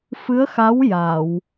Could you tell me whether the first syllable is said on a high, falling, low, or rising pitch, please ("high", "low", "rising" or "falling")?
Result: rising